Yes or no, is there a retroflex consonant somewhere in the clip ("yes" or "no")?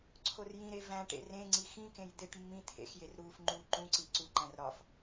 yes